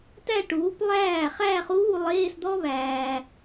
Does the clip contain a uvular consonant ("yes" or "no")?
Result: yes